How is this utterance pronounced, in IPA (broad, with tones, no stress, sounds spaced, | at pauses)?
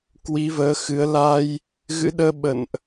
k w i˨˦ v əː˨˦ x ɨ˨˦ ə̯ l a˧ j | ɣ ɨ̰˧˥ ɗ əː˧ ɓ ə̰˧˨ n ʔ